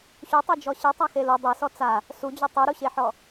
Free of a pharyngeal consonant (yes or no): no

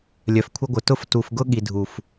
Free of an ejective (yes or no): yes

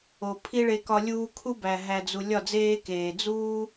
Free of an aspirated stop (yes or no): no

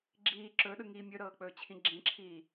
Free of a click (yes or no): no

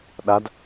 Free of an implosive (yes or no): no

